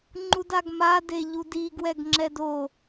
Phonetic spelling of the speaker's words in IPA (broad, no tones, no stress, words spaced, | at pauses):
ŋ͡ǃudaɡma deʎudiɡ wɛɡŋ͡ǁɛdo